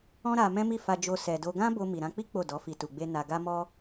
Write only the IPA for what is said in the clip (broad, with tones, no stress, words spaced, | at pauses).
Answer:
ɔ̃˦ɾa˧ mɛ̃˦mi˦˨ fa˧ d͡ʒo˧ sɛ˧do˦ ɡã˦ bo˧ mi˨ɾã˧k͡pi˦ k͡po˦˨dɔ˨˦fi˧ tu˧ɡ͡be˦ na˧ɡa˦mɔ˦